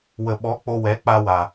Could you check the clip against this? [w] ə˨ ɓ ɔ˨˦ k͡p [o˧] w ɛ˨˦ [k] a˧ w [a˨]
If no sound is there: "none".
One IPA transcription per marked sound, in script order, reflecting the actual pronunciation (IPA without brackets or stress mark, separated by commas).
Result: w, o˧, k͡p, a˨